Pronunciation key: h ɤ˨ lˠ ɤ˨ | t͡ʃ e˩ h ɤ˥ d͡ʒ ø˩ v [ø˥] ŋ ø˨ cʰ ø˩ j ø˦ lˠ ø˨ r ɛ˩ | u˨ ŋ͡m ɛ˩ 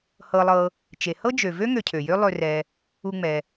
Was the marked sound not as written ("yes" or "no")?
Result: no